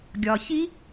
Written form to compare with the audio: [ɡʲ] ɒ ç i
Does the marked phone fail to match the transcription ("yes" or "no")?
no